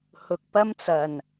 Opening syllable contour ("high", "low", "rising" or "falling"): low